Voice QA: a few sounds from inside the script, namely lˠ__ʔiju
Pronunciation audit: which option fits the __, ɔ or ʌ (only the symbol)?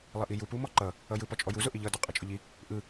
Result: ʌ